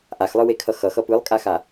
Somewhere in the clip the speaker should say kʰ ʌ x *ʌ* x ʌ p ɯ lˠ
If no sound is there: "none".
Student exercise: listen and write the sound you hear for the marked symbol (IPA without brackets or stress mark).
ʌ